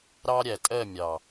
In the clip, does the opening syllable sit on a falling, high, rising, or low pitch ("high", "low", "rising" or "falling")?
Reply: high